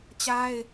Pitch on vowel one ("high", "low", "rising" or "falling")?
high